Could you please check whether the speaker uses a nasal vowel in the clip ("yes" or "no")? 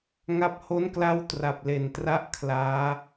no